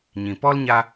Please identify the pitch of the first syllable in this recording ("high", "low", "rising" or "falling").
low